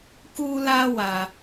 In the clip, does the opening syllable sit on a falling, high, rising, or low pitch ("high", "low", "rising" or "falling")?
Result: high